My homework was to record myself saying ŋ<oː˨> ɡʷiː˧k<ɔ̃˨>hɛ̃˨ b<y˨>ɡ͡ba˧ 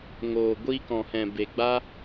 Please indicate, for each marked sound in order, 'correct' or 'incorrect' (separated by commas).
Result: correct, correct, incorrect